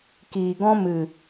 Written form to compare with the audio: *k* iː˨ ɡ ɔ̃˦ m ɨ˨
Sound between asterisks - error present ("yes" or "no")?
no